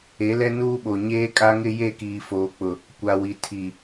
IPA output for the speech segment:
e˨˦ l ɛ˦ n uː˦ ɓ o˨ ɲ eː˦ kʼ a˦ ŋ ɪ˦ j e˦˨ k iː˨ f oː˨ k͡p ʊ˨ | kʷ a˨ w i˨ tʰ i˨

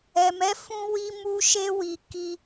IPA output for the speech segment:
ɛ˨ m ɛ˨˦ f ũ˧ w i˧ m u˧ ʃ e˧ w i˨ k i˧

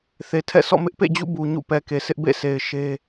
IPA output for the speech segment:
θ e˨ tʰ ɛ̰˦˨ s ɔ̰˦˨ m ɪ˦ ʔ p ḛ˦˨ d͡ʑ ṵ˦˨ b u˨ ɲ ṵ˦˨ p ɛ˨ k e˨ sʰ ɪ˦ ʔ b ḛ˦˨ s e˨ ɪ̯ ʃ e˦

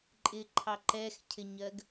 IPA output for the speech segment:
ǃʼ ɪ ǃʰ ɑ ǃ ɛ x cʰ ɪ ɲ ɜ ɡ

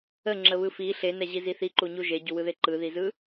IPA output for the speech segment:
ə ŋ͡ǁ ə β ɯ f i ɬ e n ɛ ʑ i z i θ i ǃ u ɲ u ʒ e ɟ u w ɯ ð e ǃ ɯ ð i z ɯ

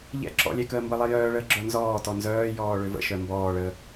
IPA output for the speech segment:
ʎ ɛ̰ ǁ ɔ̰ lʲ ɛ k əː m b ə lˠ ɛ j œː ɭ əː ɡ͡ǁ œ n z ɔː t ɔ n z œː j ɔː ɭ ø v ə̰ ʃ œ m b ɔː ɭ əː

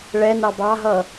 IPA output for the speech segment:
ɭ ɛ n ɑ b ɑ ɦ ʌ

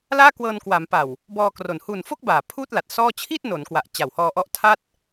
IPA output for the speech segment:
l aː˥˩ k w ɤː˧ n k w a˩˦ m p a˨˩ w | b ɔː˧ k r o˨˩ n h u˨˩ n f o˥˩ k̚ b aː˨˩ pʰ uː˥˩ t̚ l a˨˩ t̚ s ɔː˥˩ t͡ɕʰ i˥˩ t̚ n o˩˦ n k w a˨˩ ʔ t͡ɕ a˨˩ w h ɔː˧ ʔ ɔ˦˥ ʔ tʰ a˥˩ t̚

